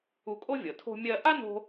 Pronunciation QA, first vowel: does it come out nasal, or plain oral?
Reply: oral